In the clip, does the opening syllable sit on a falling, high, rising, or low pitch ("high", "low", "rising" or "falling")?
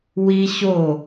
high